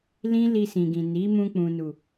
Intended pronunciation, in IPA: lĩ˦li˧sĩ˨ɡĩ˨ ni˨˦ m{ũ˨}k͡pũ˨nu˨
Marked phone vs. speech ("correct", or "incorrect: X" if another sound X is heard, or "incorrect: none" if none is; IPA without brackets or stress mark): incorrect: ũ˧